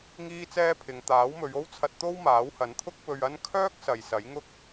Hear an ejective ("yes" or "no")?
no